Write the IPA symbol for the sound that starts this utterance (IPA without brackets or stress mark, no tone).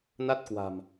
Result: n